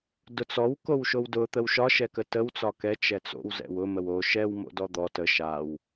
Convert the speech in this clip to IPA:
d ʊ t͡s ɔ w k o w ʃ o w d ʊ t̪ ə w ʃ ɒ ʃ ɛ k ə t ə w t͡s ɒ k ɛ t͡ʃ ɛ t͡s o̰ w z ɛ̰ w ʊ m ə w o ʃ ɛ w m o̰ d ɔ d̪ ɔ t ə ʃ a w

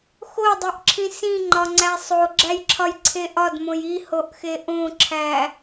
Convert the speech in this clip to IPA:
x o dˤ e ʔ ǁʰ ĩ s ĩ ŋ͡ǃ ɒ ŋ͡ǀ æ sˤ o ɡ͡ǁ æ j ǁʰ ɒ j ǀʰ e ʔ ɒ d m õ j i h o ʔ x e ʔ õ ǁʰ æ

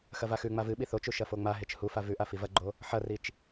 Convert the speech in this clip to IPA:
x ɐ v a x ʉ ŋ͡m a v ɨ ɓ i θ o t͡ʃ u ʃ ɐ f o ŋ͡m a ɦ e t͡ʃ h u f a v ʉ ʔ a f i v ɐ ɡ͡ǃ o | ħ ɐ r i t͡ʃ

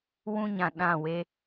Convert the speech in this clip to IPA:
w ũ˦ ɲ ã˨ ɗ ã˦˨ w e˦

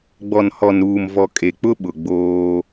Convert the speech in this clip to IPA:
ɡ͡b ɔ˨ n h ɔ˨ n ɾ uː˨ m v ɔ˨ kʼ e˨ k͡p ʊ˦ ɓ ʊ˨ ɡ͡b oː˦

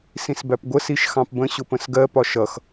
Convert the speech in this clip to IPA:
s ĩ s b æ p ɡʷ ə s i ʃ x ɑ̃ p b ə̃ ɕ ʊ p ə̃ s ɡ ɜ p ɒ ʃ ʌ x

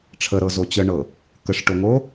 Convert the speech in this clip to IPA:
ʈ͡ʂʰ ə ɾ ɤ z o t͡ɕ ə ɳ ɤ | k ə ʂ ʈ o ŋ o

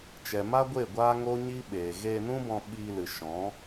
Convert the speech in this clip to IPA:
t͡ʃ ɛ˨ m a˦ ɡʷ e˦˨ ɡʷ aː˦ ŋ o˦ ɲ i˦ ɓ eː˨ ɣ eː˧ n ũ˦ b ɔ̃˧ ɓ iː˧ l ɨ˨ ʃ ɔ̃˨˦

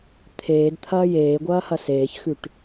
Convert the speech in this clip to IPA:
t̪ʰ eː d t̪ʰ ɐː j eː ɡʷ ɐː h ɐ s eː ç x ʉ ʈ

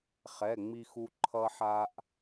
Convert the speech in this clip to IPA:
χ ɛ˧˥˧ ŋ͡m i˥ x u˥ ǃʰ ʌ˥ ħ a˥ ʔ

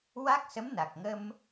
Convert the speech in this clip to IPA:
w a˦˥ k̚ s ə˧˥ m n a˨˩ k̚ ŋ ə˧ m

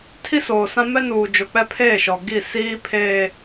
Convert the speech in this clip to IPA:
tʰ i˦ s oː˨ s ã˦ m ɛ˦ n uː˨ d͡ʒ o˨ k͡p ɛ˦ pʰ eː˦˨ ʃ ɔ˨ ɡ i˦˨ s iː˦ pʰ eː˦

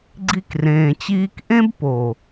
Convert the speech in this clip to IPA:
ɡ͡ǀ i˧ k r ẽː˨ t͡ɕ iː˧ k ʔ ẽ˦ b p o˨

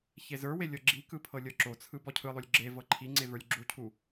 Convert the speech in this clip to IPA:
ç e z ə˞ w e lʲ ɤ ɡ͡ǁ i k ɯ pʰ ɤ lʲ ɤ ǁ o t͡sʰ ɯ b ɔ cʰ ɯ lˠ o lʲ ɡ͡ǁ e v ɤ ǃʰ i ŋ͡ǀ e v ə˞ lʲ ɡ͡ǁ u cʰ u

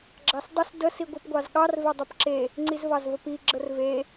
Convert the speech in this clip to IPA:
ɡ͡ǁ ɑ s dˤ ə s d ə s i ɡʷ i p ɡʷ ɑ z ɠ ɑ r v e dˤ u p ǁ e | ŋ͡ǀ i z v ɑ z v ə p i ɡ͡ǁ ə r v e

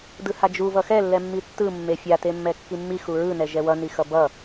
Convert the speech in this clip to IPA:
d ɯ h a d͡ʒ u v ʌ x ɛ lː ɛ mː i tː ɯ mː e fʲ a t e mː ɛ kː i mː i x u ɹ ɯ n ɛ ʒ ɛ w ʌ n i x ʌ b ʌ

